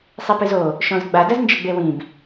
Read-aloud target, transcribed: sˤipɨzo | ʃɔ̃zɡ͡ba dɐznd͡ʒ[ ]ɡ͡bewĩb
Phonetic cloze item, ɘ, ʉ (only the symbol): ɘ